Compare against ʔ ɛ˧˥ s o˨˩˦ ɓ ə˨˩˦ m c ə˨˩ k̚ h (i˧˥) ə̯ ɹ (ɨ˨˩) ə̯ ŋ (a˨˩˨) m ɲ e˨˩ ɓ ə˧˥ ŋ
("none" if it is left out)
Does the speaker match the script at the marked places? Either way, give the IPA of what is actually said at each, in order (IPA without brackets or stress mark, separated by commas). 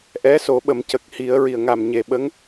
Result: i˨˩˦, i˨˩, a˨˩